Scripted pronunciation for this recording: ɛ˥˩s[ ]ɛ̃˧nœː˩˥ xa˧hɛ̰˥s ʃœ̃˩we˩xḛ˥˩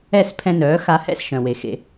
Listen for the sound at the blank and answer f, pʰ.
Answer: pʰ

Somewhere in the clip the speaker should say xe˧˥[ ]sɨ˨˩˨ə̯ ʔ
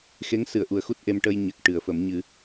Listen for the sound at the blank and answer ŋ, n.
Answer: ŋ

